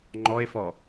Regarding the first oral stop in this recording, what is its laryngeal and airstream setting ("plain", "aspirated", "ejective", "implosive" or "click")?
click